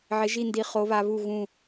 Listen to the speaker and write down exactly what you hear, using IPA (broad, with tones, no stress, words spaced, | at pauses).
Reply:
ʕɪ˧˥ʒi˥˧ndi˧˥ χo˧˥βa˧˥βu˥˧ ɣũ˥˧